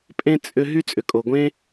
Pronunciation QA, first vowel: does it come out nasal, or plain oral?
nasal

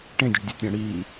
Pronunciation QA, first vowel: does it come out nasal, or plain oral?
nasal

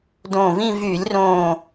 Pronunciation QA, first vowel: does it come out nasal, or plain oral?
nasal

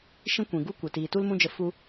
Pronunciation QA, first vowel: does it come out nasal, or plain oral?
nasal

